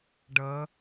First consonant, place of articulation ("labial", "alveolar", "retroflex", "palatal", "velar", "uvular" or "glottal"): retroflex